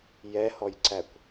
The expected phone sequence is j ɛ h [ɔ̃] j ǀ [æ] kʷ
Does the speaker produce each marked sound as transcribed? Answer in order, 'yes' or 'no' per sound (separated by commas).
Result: no, yes